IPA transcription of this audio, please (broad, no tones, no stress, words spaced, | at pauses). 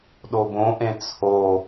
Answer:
ɗobõʔẽ t͡sʰo